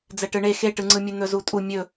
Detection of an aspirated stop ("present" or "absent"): absent